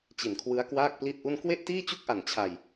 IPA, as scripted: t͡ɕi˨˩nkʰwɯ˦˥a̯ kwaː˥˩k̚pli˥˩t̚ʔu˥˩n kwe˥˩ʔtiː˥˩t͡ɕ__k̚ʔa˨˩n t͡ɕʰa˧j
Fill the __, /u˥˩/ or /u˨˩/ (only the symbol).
u˥˩